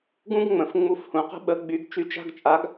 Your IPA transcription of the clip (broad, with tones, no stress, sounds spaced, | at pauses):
ɡ ũ˥ ɡ ŋ͡m ə̃˩˧ f ŋ͡m u˧˥˧ f h ũ˩˧ q ə̤˥ ɓ ə˨˥ ɡ͡b y˨˥ ɡ t͡ʃ y˨˥ t͡ʃ a̤˧˥˧ ɡ t͡ʃʼ a˨˥ ɡ